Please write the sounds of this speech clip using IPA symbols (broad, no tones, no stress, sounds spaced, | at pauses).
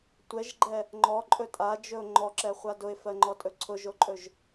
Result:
tʷ ɛ ʒ ɡ͡ǃ ɛ | ŋ͡ǃ ɔ ǃʼ ɵ tʼ a d͡ʒ ɵ ʊ̯ ŋ͡ǃ ɔ ǁ ɛ χʷ a d ʊ ɪ̯ f ɜ ŋ͡ǃ ɔ tʼ ɵ ǀʰ ʊ ʒ o ǃʼ ɵ ʒ